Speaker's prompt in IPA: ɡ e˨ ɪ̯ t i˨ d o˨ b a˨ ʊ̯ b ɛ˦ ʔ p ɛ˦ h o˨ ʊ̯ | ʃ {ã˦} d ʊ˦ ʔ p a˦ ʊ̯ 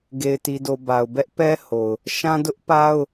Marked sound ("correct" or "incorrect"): correct